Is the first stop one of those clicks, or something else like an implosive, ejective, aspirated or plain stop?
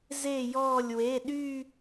implosive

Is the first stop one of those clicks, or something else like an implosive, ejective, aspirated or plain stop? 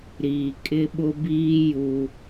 ejective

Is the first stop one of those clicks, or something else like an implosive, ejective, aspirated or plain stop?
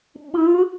implosive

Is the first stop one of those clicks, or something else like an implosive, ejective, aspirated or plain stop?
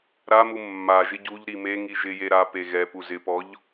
plain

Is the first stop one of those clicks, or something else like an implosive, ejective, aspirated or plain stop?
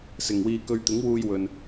plain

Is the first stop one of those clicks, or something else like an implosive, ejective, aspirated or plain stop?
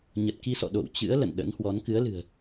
plain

